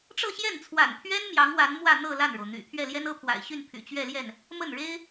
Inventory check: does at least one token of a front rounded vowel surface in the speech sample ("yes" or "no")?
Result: yes